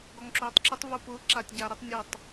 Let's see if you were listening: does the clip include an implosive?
no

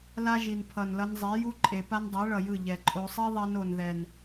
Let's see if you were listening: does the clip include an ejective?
yes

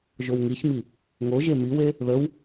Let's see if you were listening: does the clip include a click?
no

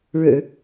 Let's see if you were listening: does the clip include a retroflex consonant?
yes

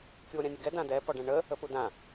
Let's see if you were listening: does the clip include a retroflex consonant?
yes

